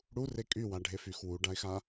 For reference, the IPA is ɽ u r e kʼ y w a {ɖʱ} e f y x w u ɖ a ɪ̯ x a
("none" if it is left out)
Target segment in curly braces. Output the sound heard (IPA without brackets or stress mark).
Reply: ɖʱ